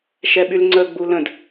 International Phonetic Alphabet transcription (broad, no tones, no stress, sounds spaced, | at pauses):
ʃ ɛ ɓ y l ŋ͡ǀ ə ɡ͡b u l ə̃ d